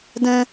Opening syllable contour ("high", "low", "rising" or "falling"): high